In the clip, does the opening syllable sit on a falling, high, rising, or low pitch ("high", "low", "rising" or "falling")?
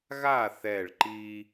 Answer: falling